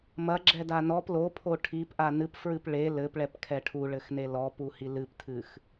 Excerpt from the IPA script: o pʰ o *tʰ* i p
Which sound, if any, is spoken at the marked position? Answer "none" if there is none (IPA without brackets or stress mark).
ʈʰ